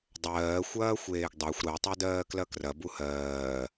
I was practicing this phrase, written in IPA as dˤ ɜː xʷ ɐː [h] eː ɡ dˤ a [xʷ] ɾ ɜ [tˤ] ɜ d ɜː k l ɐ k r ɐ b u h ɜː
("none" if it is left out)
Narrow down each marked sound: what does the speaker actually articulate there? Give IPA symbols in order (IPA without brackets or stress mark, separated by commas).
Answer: xʷ, xʷ, tˤ